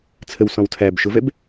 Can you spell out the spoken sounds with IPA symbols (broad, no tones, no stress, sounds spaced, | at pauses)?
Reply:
t͡sʰ ə w s ɔ̃ w tʰ æ b ʃ ʊ v ɛ b